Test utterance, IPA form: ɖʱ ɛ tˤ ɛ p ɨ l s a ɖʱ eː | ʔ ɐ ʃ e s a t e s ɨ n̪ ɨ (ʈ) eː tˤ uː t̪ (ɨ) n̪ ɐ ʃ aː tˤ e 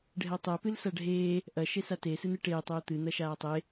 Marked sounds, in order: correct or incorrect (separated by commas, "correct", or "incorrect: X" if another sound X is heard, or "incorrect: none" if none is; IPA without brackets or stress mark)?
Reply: correct, correct